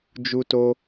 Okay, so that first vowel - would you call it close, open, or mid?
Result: close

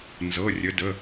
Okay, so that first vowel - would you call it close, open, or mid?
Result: mid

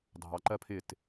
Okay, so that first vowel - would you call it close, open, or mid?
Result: open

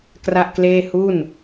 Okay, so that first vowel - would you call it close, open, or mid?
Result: open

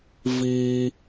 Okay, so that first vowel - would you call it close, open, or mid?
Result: close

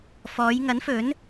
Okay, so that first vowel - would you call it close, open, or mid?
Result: mid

